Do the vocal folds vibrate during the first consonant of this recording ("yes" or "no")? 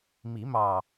yes